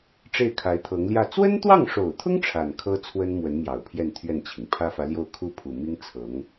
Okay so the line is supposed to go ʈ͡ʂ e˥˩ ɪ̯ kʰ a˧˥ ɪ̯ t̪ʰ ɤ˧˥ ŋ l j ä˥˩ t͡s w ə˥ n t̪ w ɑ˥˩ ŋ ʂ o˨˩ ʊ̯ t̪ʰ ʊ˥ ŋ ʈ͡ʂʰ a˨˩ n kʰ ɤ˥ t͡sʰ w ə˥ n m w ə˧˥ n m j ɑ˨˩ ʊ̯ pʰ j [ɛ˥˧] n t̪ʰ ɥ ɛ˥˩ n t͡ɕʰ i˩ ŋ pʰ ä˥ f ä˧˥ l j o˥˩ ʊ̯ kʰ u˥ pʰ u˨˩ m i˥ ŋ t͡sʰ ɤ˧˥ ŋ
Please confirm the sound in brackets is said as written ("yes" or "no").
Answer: yes